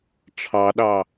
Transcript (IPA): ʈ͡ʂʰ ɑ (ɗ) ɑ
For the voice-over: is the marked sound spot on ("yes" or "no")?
yes